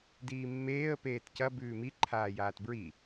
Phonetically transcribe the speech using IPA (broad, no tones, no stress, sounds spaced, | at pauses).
d iː mː eː ə̯ p eː t c ɐ b ʉː m i ǃʰ aː j aː t b ɹ i